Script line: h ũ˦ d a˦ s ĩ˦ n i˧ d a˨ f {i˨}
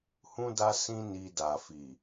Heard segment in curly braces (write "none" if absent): i˨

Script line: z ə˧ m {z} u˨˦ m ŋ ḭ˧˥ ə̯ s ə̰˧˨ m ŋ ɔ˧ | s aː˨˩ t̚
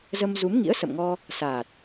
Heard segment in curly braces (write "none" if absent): z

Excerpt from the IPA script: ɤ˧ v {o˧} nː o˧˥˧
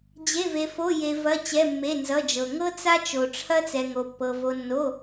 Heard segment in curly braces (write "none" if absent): o˧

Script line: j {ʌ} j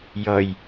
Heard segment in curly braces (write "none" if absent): ʌ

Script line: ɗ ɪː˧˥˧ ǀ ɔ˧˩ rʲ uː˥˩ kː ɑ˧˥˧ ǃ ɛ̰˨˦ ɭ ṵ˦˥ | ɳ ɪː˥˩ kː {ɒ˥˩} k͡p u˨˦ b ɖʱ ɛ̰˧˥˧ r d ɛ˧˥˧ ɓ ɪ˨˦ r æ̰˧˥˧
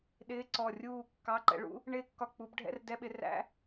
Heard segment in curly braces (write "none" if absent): ɒ˥˩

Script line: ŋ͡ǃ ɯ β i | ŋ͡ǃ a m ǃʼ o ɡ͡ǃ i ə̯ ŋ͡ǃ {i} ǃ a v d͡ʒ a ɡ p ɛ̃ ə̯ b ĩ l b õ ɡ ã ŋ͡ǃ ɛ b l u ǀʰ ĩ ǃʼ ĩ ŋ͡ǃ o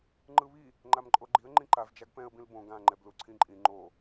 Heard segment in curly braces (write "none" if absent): ĩ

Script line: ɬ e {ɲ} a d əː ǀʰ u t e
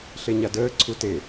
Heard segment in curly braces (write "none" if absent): ɲ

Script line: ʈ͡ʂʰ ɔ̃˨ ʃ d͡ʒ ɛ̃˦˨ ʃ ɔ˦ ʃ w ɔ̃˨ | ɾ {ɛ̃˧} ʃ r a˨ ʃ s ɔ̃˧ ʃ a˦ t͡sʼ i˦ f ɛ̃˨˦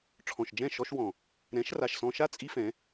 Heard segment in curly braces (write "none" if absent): ɛ̃˨˦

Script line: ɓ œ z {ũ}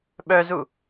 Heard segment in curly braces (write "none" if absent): u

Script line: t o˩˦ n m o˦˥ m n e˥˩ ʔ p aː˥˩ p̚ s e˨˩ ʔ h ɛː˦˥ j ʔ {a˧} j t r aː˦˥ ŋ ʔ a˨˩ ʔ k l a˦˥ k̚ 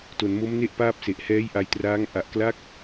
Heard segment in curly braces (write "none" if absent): a˧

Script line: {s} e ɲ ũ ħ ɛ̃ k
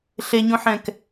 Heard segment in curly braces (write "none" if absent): ɬ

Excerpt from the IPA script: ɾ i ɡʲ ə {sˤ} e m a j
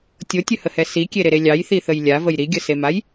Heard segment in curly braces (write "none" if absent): s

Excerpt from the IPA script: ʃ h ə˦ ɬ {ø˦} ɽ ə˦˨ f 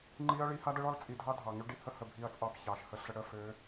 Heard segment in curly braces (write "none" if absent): ə˦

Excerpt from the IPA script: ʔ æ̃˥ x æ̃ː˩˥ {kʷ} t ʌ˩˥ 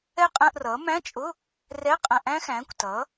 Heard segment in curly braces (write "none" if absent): kʷ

